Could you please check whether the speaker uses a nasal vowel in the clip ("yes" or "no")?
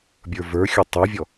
no